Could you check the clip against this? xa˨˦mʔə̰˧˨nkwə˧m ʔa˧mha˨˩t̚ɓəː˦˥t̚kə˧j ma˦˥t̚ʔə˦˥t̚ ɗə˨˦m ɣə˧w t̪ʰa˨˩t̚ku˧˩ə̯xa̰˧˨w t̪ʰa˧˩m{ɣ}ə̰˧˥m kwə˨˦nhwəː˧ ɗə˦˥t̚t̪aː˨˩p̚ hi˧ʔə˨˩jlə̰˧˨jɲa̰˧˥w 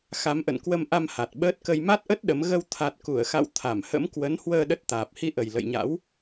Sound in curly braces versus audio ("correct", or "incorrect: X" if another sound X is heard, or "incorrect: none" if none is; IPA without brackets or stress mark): incorrect: h